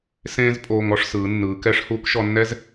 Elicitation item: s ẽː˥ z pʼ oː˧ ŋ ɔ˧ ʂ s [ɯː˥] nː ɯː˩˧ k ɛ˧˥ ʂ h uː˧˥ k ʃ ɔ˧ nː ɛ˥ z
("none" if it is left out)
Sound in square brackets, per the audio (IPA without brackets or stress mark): ɯː˩˧